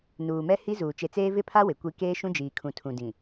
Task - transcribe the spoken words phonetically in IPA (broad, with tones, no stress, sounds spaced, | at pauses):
n uː˨ m ɛ˦ h i˦ z uː˨ t͡ʃ e˨ t͡s eː˦ v ɪ˦ pʰ a˦ w ɪ˨ kʷ i˦ k eː˦ ʃ ũ˦ d͡ʒ iː˨ kʰ ũ˨ tʰ ũ˨ d ĩ˨